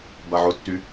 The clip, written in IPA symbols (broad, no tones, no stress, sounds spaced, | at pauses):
b a ʕ ʊ tː y